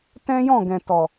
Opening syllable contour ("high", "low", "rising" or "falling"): high